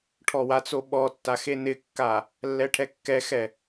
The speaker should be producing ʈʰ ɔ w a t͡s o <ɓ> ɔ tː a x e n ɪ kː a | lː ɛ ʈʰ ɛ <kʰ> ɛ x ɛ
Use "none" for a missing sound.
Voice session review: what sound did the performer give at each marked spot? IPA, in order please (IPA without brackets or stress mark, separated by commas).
ɓ, kː